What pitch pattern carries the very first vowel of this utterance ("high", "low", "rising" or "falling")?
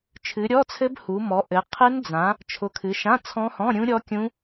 rising